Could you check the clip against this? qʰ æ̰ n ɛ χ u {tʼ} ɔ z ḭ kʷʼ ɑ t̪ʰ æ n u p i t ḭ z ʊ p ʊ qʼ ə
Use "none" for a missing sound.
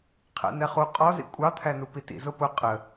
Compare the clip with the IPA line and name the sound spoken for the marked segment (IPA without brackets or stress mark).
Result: qʼ